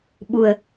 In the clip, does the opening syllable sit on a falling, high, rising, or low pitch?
low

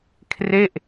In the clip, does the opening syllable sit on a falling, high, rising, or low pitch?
falling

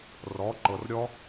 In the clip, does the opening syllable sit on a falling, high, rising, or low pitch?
rising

